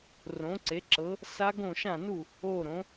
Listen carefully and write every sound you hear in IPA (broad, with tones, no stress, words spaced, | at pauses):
rõ˩˥ǀe˩˥ǁɤ˩˥ | sa˦˥ɡõ˥˩ʃã˥˩nu˥˩ | o˥˩ ɾõ˩˥